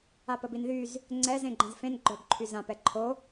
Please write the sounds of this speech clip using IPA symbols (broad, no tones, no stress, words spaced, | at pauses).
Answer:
apəbinðyz | ŋ͡ǀɛz ẽɡ͡ǃə̃zfẽn ɡ͡ǃœbǃʰyzãp ɛǃʰo